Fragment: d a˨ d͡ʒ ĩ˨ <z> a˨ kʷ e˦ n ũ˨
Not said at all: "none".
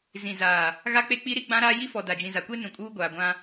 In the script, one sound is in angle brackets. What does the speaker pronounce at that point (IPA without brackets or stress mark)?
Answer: z